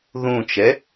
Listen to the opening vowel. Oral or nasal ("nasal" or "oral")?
nasal